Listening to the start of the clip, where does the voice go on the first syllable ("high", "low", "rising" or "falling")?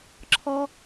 high